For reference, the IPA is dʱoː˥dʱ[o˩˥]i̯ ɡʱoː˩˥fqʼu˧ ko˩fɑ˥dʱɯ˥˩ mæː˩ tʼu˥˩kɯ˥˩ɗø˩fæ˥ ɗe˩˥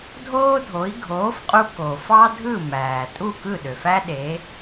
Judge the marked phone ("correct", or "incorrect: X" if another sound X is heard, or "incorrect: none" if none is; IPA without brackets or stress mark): correct